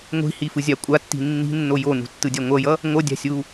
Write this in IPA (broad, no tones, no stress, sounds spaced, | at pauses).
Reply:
ŋʷ i̤ h i f ɯ zʲ a kʷʼ a tː i̤ nː i̤ nː o j o n ṳ tː ɯ dʲ a ŋʷ ʌ j ʌ | ŋʷ ʌ dʲ a̤ sʲ u